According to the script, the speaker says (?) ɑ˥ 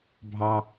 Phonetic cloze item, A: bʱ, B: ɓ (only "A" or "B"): A